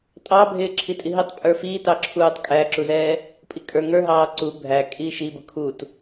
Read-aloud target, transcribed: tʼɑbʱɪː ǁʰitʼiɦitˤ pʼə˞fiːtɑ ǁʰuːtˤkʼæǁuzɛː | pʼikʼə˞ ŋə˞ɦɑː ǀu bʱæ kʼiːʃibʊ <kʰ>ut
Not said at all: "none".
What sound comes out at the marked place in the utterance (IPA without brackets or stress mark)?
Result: kʰ